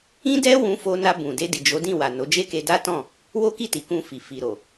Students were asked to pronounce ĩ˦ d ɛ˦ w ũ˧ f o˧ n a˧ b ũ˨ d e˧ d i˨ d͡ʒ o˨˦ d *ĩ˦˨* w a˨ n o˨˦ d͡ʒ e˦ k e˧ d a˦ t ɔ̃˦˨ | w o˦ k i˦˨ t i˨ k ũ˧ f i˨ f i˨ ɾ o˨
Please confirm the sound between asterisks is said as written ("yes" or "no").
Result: yes